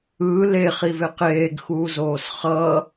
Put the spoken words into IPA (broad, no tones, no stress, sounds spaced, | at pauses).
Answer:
ɯː l e χ i v e q eː ɡ x uː z oː s χ ʌː